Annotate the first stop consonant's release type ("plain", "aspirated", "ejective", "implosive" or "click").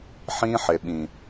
implosive